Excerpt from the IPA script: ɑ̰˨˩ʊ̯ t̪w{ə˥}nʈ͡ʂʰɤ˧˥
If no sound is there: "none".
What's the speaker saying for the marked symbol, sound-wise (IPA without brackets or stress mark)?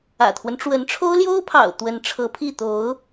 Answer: ə˧˥